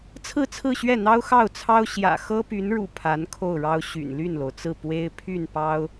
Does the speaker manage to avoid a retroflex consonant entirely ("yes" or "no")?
no